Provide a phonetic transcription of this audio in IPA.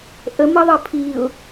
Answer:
ʔ ə m ə ðˤ ə pʰ i ʊ̯

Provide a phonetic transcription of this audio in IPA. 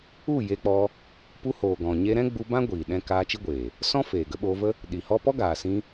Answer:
u˦˨ j e˧ k͡p ɔ˧ | p u˧ h oː˨ ɡ ɔ̃˨ ɲ e˧ ɾ ɛ̃˦ ɡ͡b u˧ b ã˦ ɡʷ iː˨ ɗ ɛ̃˧ k aː˧ t͡ʃ i˦ ɡʷ eː˨ | s ɔ̃˦ f eː˨ ɡ ə˨˦ ɓ oː˧ v ə˦ | ɗ i˨ h ɔ˦ p ɔ˦ ɡ aː˨ s ĩ˧

